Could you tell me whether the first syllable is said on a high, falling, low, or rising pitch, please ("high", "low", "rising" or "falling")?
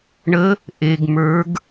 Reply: rising